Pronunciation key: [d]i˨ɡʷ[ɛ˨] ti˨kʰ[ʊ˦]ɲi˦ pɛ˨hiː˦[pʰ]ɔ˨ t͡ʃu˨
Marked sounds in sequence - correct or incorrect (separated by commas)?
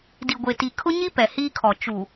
correct, incorrect, correct, incorrect